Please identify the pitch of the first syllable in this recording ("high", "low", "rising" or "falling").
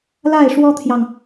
falling